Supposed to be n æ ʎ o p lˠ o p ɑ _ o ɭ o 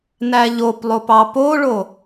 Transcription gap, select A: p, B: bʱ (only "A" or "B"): A